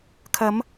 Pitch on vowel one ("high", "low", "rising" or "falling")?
rising